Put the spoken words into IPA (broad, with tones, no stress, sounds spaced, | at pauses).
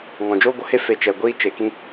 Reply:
ŋ ɔ̃˨ d͡ʒ oː˦ ɡʷ ə˨˦ h e˦ f e˧ t͡ʃ ɛ˨ ɡʷ iː˦ t͡ʃ e˨ k ĩ˦